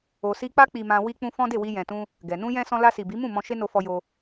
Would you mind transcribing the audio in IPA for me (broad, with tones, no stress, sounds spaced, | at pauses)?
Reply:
o˨ s i˧ k͡p a˦ k͡p i˧ m ã˧ w i˧ k͡p ũ˧ f ɔ̃˦ d e˦˨ w i˧ j ɛ̃˨ t ũ˧ | ɡ ɛ˨ n ũ˧ j ɛ̃˧ s ɔ̃˧ l a˧ s i˨ b i˨˦ m ũ˦˨ m ɔ̃˧ ʃ e˦ n o˧ f ɔ˧ j o˧